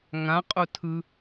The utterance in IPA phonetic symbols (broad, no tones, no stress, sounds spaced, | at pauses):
ŋ ã qʼ o tʰ ɯ